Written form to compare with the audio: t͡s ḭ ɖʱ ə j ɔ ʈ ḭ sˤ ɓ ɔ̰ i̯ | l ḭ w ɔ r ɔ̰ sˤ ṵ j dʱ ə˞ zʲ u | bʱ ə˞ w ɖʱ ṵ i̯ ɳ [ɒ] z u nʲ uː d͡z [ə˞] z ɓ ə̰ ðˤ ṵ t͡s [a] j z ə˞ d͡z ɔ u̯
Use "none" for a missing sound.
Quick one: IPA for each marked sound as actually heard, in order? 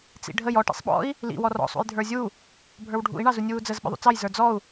ɑ, ə, ɑ

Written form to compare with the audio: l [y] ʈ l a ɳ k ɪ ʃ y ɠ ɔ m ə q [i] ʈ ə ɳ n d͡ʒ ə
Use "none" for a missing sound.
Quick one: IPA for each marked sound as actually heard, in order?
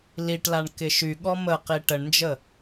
i, i

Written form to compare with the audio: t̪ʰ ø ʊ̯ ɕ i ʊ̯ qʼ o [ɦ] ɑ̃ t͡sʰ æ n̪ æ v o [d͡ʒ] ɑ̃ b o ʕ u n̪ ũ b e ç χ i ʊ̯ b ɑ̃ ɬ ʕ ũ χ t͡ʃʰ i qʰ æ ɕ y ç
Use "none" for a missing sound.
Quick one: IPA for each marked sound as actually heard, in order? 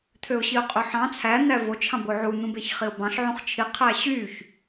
ħ, t͡ʃʰ

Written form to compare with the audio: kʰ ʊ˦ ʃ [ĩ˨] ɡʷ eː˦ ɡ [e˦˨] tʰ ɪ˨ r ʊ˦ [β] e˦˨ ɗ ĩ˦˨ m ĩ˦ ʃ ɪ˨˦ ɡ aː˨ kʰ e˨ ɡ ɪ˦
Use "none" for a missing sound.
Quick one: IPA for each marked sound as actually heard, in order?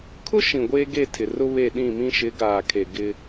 ĩ˨, e˦˨, β

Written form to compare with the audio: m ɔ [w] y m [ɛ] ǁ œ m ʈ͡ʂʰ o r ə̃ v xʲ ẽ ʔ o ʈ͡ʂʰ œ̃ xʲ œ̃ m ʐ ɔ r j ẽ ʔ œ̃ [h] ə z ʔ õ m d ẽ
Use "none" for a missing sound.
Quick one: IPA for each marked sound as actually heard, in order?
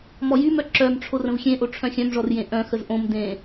j, œ, x

